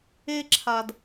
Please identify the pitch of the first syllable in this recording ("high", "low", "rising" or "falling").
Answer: high